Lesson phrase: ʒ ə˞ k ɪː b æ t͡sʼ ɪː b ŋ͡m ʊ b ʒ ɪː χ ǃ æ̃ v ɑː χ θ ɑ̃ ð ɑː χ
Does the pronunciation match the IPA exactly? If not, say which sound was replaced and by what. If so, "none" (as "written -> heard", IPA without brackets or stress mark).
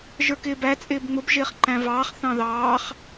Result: none